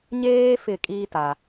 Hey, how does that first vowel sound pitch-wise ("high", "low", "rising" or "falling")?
high